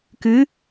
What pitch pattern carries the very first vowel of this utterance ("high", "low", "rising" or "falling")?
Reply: rising